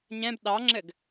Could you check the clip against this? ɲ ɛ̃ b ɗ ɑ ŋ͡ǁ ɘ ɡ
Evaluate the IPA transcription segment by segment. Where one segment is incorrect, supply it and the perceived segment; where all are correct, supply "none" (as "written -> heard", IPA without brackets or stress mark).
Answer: none